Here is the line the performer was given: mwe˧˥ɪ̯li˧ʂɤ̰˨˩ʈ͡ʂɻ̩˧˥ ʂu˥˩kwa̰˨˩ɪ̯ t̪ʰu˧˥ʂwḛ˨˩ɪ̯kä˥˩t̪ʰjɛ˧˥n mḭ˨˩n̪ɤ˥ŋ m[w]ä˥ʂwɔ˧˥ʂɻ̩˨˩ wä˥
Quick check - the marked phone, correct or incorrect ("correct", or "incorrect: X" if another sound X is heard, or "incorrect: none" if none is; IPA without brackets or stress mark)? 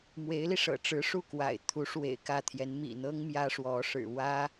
incorrect: j